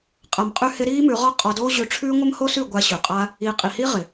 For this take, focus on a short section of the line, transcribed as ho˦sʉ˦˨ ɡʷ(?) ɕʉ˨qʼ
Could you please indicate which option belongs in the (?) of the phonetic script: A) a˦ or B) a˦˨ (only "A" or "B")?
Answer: A